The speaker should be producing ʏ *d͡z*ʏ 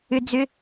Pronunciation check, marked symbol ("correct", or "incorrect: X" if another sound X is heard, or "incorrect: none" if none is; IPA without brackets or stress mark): correct